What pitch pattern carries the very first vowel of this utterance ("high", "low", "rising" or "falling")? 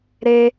high